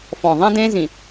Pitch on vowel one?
low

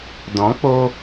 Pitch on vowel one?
rising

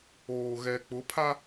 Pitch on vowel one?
low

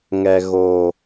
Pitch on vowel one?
low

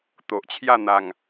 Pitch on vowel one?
low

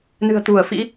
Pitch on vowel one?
low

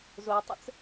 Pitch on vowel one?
low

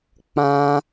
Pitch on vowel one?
high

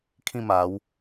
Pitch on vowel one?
falling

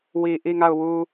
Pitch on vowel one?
low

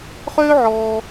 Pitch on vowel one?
high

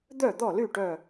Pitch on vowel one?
falling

